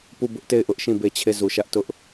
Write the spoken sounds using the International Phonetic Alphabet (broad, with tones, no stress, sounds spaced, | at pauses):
p u˦˨ b ʊ˦ ʔ t e˦˨ ɪ̯ ʔ ʊ˦ ʔ ʃ ĩ˦˨ b e˦˨ t͡ɕʰ e˦˨ z u˨ ʃ ä˦ ʔ t ʊ˦ ʔ